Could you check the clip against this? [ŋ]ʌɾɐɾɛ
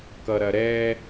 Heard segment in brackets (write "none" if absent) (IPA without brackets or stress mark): k